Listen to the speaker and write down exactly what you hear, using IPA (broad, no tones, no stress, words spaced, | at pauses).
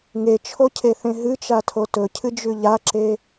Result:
ŋet͡ʃʰocʰeθẽ ɦɨt͡ʃatʰo tɵcʰɨd͡ʒʉ ʎaǁe